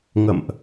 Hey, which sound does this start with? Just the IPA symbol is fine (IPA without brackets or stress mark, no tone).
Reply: ŋ